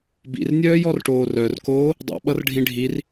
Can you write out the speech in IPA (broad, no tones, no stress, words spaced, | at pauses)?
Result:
bḭrnʲœːjɔrʈoː rœrkoː | dˤḭɓʌrɖʱĩ ɖʱir